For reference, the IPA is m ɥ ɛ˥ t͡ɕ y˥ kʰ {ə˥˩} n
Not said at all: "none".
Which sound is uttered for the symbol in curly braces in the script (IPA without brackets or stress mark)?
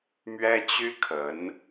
ə˧˥